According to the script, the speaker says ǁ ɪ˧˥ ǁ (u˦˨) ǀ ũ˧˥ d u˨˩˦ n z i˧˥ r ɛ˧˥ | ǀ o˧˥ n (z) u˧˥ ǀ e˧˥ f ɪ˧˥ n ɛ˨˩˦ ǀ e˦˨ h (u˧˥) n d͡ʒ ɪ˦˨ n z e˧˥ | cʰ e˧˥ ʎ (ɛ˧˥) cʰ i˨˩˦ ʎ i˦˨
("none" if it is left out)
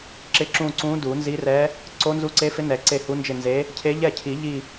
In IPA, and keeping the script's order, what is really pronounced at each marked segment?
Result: ũ˦˨, z, u˧˥, ɛ˦˨

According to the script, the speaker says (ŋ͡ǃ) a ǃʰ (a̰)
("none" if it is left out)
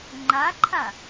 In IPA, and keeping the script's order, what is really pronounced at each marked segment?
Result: ŋ͡ǃ, a

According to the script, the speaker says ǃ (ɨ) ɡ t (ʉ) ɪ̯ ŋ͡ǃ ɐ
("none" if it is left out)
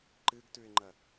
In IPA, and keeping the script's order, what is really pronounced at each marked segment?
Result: ɨ, ʉ

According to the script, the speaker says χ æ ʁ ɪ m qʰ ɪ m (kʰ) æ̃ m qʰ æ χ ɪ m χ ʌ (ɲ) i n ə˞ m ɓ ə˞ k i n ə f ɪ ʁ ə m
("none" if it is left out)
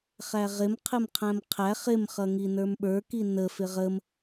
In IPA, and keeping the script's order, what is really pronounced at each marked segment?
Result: qʰ, ŋ

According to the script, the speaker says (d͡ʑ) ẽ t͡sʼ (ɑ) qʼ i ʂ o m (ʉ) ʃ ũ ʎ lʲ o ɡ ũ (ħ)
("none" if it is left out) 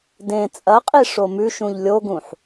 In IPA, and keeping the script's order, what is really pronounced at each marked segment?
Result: d, ɐ, ʉ, ħ

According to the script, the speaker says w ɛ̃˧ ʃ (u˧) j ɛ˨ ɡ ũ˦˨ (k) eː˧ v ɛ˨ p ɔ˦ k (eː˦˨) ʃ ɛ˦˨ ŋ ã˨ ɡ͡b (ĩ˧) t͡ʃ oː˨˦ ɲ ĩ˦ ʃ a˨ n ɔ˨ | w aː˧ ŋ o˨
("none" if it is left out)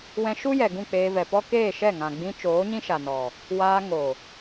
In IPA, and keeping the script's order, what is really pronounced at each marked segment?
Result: u˦, k͡p, eː˦˨, ĩ˧

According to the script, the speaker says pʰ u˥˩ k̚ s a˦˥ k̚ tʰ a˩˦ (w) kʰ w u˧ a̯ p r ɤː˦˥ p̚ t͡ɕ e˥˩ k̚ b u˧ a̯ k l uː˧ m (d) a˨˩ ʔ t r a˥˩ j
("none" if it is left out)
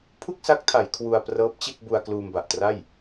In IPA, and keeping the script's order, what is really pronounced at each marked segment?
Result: j, b

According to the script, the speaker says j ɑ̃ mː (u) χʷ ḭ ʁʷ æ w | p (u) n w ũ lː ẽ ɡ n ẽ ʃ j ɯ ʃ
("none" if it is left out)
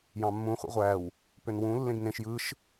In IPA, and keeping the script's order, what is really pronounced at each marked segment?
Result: ũ, ø

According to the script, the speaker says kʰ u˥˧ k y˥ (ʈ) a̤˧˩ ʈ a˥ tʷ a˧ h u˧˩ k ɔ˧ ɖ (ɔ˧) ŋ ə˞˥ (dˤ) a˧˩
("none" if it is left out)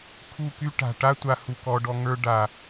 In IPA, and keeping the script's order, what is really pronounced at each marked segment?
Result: ʈ, ɔ˧, ɖ

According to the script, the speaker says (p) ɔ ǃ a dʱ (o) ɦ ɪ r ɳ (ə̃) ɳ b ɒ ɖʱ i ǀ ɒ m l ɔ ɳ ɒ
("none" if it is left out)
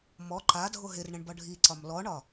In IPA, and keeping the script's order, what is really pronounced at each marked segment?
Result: m, o, ə̃

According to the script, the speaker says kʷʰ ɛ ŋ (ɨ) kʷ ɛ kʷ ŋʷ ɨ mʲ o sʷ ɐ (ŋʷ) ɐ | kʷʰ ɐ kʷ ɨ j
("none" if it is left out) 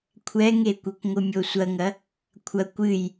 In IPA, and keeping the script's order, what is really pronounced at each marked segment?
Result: e, ŋ

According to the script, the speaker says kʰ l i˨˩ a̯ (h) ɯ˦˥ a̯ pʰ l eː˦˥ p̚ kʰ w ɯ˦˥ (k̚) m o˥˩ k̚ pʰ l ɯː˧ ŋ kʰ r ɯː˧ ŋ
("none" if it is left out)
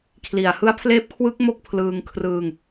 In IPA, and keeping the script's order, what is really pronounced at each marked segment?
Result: h, k̚

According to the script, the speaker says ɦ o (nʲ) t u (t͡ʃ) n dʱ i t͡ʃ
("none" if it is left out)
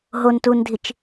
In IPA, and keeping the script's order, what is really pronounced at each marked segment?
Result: n, none

